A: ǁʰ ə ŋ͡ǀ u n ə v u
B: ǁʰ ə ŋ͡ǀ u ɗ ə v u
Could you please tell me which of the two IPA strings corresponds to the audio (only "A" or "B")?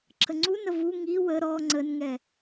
A